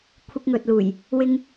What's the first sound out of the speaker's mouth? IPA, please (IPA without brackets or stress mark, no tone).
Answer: kʷʰ